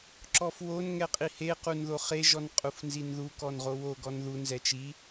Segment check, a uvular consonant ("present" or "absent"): present